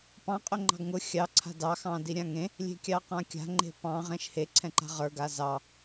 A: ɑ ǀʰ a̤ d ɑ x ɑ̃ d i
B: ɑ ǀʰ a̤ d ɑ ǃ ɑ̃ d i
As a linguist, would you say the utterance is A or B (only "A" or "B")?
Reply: A